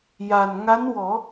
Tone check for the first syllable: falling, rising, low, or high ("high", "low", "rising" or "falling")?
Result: low